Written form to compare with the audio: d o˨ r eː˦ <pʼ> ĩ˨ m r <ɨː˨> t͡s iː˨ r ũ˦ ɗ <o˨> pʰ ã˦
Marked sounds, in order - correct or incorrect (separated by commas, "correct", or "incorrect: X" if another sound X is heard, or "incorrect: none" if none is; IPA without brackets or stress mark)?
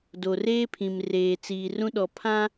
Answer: incorrect: pʰ, incorrect: eː˨, incorrect: ɔ˨